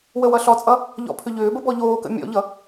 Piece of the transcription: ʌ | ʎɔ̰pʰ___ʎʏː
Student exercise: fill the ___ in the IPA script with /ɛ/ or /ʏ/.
ʏ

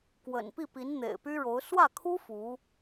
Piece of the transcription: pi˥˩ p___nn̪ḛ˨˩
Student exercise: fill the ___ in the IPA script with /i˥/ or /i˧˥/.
i˧˥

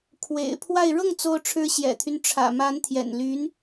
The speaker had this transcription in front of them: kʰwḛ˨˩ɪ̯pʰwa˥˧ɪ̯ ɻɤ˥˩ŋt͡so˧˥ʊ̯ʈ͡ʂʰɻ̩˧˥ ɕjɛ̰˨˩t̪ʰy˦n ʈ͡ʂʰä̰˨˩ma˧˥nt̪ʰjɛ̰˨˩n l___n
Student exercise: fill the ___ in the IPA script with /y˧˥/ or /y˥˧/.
y˧˥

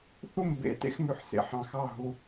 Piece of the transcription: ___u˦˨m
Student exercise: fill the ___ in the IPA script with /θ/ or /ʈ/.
θ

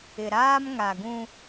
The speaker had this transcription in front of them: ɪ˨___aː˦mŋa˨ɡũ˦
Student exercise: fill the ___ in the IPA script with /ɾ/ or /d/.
ɾ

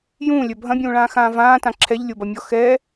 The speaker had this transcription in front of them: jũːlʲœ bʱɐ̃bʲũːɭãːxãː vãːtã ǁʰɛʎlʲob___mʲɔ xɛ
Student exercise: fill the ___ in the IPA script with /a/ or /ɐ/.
ɐ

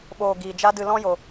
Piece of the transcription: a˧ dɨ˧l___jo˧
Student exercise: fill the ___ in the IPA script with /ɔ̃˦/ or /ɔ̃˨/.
ɔ̃˦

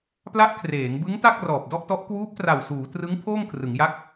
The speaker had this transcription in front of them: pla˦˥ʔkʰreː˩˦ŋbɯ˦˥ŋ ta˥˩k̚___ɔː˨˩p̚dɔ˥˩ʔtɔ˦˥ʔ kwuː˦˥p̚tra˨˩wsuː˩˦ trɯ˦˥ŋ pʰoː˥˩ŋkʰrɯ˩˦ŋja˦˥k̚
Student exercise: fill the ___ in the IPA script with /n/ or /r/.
r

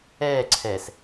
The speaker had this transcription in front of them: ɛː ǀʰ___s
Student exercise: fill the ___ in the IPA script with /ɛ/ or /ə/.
ɛ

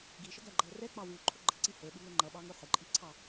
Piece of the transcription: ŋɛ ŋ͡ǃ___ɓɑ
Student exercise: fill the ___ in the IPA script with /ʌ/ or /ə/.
ʌ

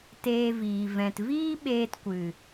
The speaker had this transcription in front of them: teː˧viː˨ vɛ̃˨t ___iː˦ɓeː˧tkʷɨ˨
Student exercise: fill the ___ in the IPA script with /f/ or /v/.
v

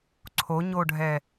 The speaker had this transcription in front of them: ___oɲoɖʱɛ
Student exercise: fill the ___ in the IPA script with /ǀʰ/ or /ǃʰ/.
ǀʰ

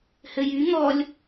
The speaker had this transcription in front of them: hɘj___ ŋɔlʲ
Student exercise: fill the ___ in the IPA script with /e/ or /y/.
y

